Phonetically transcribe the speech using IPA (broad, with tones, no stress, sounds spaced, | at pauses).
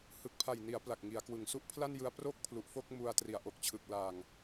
h ɯ˨˩ k̚ pʰ a˨˩ j n i˩˦ a̯ p l a˨˩ k̚ ŋ i˩˦ a̯ k w ɯ˨˩ ŋ s u˦˥ ʔ pʰ l a˥˩ n j ɯ˧ a̯ p r o˥˩ k̚ pʰ l u˨˩ ʔ f o˥˩ k̚ m u˧ a̯ t r i˩˦ a̯ ʔ o˨˩ k̚ t͡ɕʰ ɯ˨˩ k̚ l a˨˩ ŋ